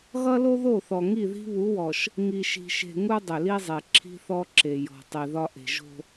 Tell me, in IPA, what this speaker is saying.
ɣʌ˦lo˦ðo˦˨θɔ˨ ŋi˦˨ði̤˦βu˨˦wɔ˨ʃ | ŋi˨ʃi̤˨ʃe̤˨ ŋu˦dˤʏ˨li˦zˤe˨ ǁʰi̤˦θɔ˦ǁe˨jɔ̤˨ tˤi˨ðɒ˦ʔe̤˨ ʒo̤˦

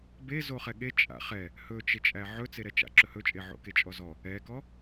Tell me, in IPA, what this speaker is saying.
be zoχɛɠe t͡ʃʼa̰χɛ | hɵt͡ʃet͡ʃʼæ ʕɵt͡seɾɛ t͡ʃa̰ǁɵhɵt͡ʃʼe ʕo̰ket͡ʃʼɔzɔ | ɛkɔ

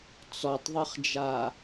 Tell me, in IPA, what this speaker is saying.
t͡sɔtˤðˤɨχd͡ʒa

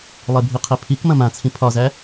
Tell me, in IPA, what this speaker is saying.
lˠebʱiqʰepʰik mɐ̃mãt͡sʰĩ pʰɒzæ

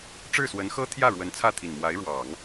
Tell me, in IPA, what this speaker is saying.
ʈ͡ʂɻ̩˥˩swə˧˥n xɤ˥ t̪ʰjä˥˩ɻwə˧˥n t͡sʰä˥˩ t̪ʰi˨˩n mwa˧˥ɪ̯ ɻwɑ˨˩˦ŋ

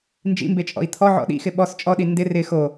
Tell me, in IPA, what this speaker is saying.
nd͡ʒḭmbet͡ʃʼɔ̰i̯ t̪ʰɔʕɔ̰ ɗḭxɪ ɓɔs t͡ʃʼɔɗi ndɪ rɪ xo

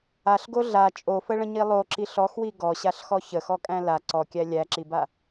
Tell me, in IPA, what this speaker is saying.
aɬɡo ɮa t͡ʃʼofəɭə̃ɲi lˠoǁiɬ ɔxwi ɡɔɕaɬxɔ çəxɔkʼæ̃ la ǀɔkʲæ lʲæǁiba

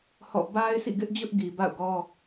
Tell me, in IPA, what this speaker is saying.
hɔ̰˦˨ ba˦ɪ̯sḭ˦˨ɡɪ˦ʔd͡ʑʊ˦ʔ ɡi˨ba̰˦˨ʊ̯ɡɔ˦

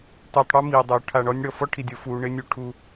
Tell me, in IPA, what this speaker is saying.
tu˨tˤɽu˦ mi˨dˤɪ˨ʊ̯ ʈʰa˨ɳɔ˦nʲɽɔ˨ fɔ˦ʈʰi˨dʲo˨fuː˨ ɳɪ˦nʲu˨ ʈʰu˨

